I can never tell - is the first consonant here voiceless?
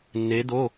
no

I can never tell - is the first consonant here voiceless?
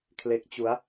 yes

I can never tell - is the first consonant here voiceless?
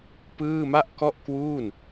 yes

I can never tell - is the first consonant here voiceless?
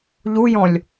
no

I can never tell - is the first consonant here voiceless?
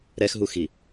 no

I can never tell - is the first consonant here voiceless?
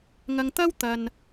no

